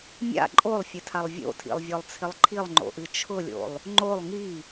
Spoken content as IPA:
mʲa̰ ǃʼolˠfʲɨtʰalˠ vʲo̰tʰḭlˠvʲɔlˠt͡sʰɪlˠ ǃʰilˠŋ͡ǃo̰ʔɨ t͡ʃʰʊlʲo̰lˠ | ŋ͡ǃolˠ ŋi

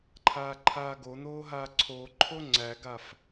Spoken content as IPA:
ǃʰaːǃʰaːɡon̪oː ɦaːǀʰoǃʰo ŋ͡ǀæɡaf

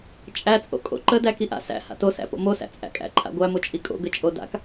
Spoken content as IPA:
t͡ʃʼæt͡sʼo̰kʼo̰ ǃə dækiʔa̰ sæ̰ ha̰tosæ̰po̰ mosæ̰t͡sʼæ̰kʼæ̰ ǃʰa̰ɡʷæmot͡ʃʼi kʼo̰ɡə t͡ʃʼoda̰k

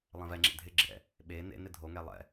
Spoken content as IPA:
lˠẽvɛŋ͡ǁḛ dʱɪɡ͡ǁɪɾɛ̰ | ɓe nḛnɪ dʱoŋɛ lˠɛ̰

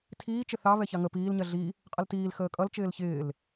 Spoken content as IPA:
tʰiː t͡ʃɪθɑ βɛçɑŋə piːl ɲɜɮi | qʼʌltiːl xəːkʼʌl t͡ʃɪːlçɪːl

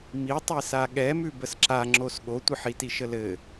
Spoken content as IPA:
mitˤi saɠɛmʉ bəsǁaŋ͡ǁos ɠotʷəħiti ʃəlɘ

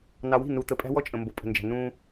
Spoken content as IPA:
nɑ˨wi̤˦˨nu˨ t̪ə˨pʼæ̤˦wɔ˦ t͡ʃʼə̃˨mbo˨ pʼə̤˨nd͡ʒæ̤˨ nũ˦

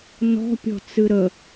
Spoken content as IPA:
nɔ̤pʲɔ̤ t͡sɨɾə

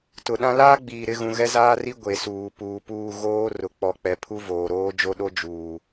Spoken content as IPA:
tʊ˨ɗã˦ laː˦ɡ͡biː˨ɾɪ˦˨ɣũ˨ ɣɛ˦zaː˦ri˦ ɡʷe˨suː˨ puː˨puː˦˨ ɣoː˦ rʊ˨k͡pɔ˨k͡pɛ˨ pʰu˦voː˨ɾoː˦ d͡ʒo˦ɗo˦ d͡ʒuː˨

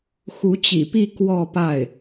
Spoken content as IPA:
xu˧˥t͡ɕḭ˨˩pi˥˧ kwɔ˥˧pa˥˩ɪ̯

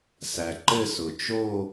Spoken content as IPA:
sæ˩ǃɘ˥˧sʊ˩ t͡ʃo˥˧

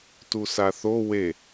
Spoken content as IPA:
tusaθo we

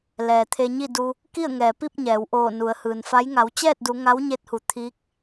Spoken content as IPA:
lɛː˩t̪ʰe˧ɲi˥˨du˧ | ki˥˨ə̯ŋɛː˩pi˥˨p̚ ɲɛː˩˧w ʔoː˧˩ nu˩˧ə̯hɯː˩nfa˧˥j ŋa˩˧wt͡ɕɛː˥˨t̚du˩˧ ŋa˧˥wɲe˧˥t̚hu˩˧ t̪ʰiː˧˥k̚

